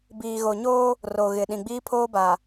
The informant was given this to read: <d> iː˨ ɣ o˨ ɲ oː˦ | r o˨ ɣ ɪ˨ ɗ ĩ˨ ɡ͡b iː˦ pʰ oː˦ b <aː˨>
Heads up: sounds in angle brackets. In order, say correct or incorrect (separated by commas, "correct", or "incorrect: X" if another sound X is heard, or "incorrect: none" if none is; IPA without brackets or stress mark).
incorrect: b, incorrect: a˨